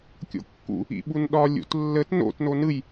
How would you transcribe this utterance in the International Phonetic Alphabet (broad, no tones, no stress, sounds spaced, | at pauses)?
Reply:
kʲ o̰ kː ṵ | ḭ ɓ u n ɗ ɒ lʲ ṵ t lː ə t n o̰ t n o n ɯ j